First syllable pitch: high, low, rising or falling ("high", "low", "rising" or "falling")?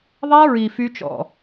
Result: high